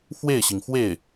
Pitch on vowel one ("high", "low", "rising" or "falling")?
falling